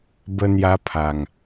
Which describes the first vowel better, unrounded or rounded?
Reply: unrounded